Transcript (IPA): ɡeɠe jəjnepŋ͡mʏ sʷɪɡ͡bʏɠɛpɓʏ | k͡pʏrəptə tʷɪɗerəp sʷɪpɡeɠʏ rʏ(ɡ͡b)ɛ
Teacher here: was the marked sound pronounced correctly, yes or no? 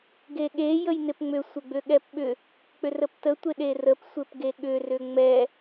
no